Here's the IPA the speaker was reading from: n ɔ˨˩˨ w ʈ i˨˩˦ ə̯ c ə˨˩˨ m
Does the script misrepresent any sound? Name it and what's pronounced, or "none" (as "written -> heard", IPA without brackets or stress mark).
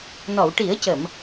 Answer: none